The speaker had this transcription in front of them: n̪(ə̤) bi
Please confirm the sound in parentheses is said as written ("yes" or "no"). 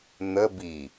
no